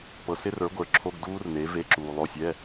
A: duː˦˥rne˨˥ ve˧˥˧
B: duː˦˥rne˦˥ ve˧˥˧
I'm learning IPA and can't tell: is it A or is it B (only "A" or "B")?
A